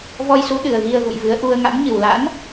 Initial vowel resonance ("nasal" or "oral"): oral